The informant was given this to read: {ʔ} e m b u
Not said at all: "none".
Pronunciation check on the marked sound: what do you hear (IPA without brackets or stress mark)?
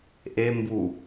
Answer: ʔ